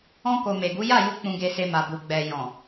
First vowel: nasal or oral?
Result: nasal